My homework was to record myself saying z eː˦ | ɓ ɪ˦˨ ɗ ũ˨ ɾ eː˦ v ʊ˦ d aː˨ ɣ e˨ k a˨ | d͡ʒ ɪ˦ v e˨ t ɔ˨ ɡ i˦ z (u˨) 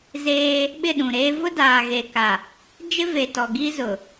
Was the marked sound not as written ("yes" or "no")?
yes